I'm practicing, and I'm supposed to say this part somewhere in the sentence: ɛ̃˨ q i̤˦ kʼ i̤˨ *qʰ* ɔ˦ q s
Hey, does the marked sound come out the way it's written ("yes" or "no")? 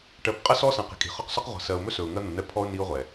no